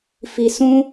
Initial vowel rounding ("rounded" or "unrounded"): unrounded